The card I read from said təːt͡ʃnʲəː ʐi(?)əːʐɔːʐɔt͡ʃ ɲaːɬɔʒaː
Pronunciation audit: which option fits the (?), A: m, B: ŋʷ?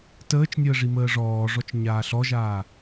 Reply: A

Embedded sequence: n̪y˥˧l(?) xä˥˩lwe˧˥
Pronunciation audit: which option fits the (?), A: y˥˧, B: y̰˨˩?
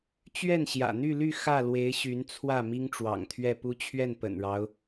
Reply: A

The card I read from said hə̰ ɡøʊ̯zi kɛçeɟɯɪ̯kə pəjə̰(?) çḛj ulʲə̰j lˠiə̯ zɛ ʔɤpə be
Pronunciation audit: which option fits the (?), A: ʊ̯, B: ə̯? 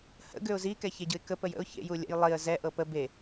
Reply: A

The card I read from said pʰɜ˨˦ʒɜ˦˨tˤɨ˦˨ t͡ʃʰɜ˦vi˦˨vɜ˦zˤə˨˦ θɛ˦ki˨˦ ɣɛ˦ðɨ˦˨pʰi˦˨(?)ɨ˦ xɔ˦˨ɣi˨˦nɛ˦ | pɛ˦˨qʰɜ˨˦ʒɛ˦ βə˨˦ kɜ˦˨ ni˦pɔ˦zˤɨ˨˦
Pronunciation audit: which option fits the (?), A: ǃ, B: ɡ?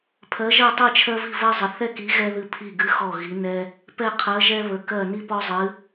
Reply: B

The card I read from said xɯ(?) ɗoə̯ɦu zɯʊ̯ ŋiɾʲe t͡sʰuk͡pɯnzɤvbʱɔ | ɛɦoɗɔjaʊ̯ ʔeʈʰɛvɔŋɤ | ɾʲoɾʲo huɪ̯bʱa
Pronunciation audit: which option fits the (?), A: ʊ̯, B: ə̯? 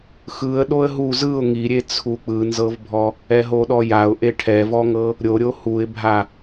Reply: B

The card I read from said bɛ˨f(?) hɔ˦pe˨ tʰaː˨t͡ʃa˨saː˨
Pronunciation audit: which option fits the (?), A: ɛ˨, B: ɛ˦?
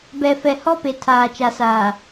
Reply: A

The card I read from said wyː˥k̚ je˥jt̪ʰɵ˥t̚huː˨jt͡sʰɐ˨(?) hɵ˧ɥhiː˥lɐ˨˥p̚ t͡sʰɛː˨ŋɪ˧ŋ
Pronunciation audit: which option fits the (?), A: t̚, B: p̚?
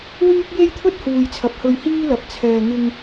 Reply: B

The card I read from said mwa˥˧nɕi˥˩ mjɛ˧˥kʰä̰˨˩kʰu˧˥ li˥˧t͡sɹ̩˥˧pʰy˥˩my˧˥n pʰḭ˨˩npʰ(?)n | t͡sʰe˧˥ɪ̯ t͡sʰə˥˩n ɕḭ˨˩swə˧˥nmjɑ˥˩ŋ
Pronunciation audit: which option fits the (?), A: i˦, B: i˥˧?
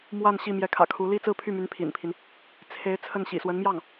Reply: A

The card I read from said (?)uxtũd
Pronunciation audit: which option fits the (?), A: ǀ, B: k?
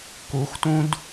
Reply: B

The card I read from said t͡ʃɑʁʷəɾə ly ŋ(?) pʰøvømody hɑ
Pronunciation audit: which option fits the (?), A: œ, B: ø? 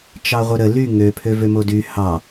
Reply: B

